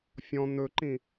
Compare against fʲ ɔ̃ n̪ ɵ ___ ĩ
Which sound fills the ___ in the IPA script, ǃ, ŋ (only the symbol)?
ǃ